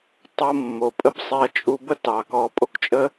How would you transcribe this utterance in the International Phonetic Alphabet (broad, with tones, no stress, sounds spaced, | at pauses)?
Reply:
tˤ o˧ mː o˨ pʼ ə˦ b sˤ e˧ ɐ̯ t͡ʃʼ u˧ b ə˦ t ɑ˨ k ɔ˧ pʼ o˦ k t͡ʃʼ ə˦